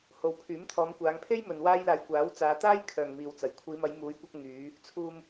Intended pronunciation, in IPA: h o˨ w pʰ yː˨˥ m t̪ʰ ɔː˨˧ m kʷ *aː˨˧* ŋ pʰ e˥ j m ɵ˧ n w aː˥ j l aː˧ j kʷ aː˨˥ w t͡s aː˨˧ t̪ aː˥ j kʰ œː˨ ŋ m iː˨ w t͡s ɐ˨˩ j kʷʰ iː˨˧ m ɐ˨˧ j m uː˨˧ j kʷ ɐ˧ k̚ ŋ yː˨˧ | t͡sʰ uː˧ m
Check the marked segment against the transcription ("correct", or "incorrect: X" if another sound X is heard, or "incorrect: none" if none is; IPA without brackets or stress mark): correct